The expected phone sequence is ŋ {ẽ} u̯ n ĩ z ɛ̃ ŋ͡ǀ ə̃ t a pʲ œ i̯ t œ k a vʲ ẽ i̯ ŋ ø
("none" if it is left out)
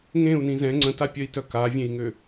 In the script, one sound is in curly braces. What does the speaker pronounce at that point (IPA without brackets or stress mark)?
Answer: ẽ